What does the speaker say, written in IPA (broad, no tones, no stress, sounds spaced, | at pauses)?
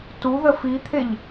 t u ð ə f i t̪ʰ e ʎ